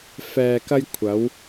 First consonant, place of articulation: labial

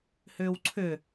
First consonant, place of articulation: glottal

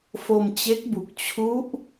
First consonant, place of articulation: labial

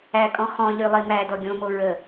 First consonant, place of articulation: velar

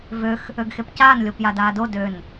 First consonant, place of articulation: labial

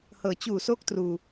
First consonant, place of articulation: glottal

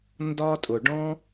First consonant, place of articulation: alveolar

